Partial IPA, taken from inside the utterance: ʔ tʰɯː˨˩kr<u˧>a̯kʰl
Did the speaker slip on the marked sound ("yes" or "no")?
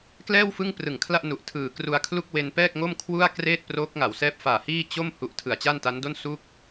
no